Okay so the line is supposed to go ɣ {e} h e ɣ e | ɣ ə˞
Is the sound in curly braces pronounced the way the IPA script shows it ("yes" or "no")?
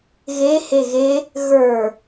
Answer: yes